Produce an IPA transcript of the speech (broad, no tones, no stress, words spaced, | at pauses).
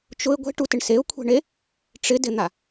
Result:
t͡ʃʊɪ̯ ɡʷe̤ʈutɪɳ seʊ̯kʷʰe̤ɳe | ʈ͡ʂɪdɪn̪a